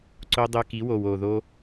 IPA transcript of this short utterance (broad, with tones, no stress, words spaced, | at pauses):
ǀo˧dˤø˧ki˨˦wo˨w o˨ðo˧